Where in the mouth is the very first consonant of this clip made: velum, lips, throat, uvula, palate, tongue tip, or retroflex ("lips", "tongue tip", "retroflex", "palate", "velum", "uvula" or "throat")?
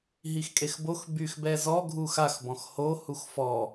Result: throat